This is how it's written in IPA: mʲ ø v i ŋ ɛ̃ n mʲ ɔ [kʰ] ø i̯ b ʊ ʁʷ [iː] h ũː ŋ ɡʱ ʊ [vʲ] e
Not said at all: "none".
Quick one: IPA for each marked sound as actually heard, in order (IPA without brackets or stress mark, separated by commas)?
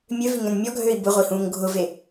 ɡʱ, i, v